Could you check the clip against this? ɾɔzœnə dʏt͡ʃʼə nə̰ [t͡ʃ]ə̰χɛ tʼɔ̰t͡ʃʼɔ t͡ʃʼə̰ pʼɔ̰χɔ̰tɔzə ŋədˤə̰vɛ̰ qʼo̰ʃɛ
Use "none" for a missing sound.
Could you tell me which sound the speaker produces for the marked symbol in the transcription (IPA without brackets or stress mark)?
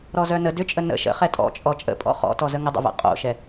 ʃ